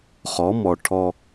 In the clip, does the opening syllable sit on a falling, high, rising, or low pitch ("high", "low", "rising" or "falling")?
rising